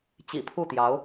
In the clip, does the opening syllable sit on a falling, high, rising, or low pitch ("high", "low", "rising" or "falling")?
low